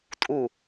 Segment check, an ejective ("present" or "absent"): present